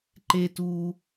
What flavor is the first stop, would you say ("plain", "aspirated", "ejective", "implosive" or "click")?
click